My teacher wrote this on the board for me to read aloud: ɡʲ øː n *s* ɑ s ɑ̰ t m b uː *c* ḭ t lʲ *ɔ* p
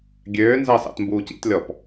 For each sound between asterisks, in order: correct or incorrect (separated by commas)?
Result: incorrect, correct, correct